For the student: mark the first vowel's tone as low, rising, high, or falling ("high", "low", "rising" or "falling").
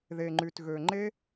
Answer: low